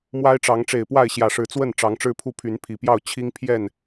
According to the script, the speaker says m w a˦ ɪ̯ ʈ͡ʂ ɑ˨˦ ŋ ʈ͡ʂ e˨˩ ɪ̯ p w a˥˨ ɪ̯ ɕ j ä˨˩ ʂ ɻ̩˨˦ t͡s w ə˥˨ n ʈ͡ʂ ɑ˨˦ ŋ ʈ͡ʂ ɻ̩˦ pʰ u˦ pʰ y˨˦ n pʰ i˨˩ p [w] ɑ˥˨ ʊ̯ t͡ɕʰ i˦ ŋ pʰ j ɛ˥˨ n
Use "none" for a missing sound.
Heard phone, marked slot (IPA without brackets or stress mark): j